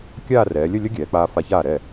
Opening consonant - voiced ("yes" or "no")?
no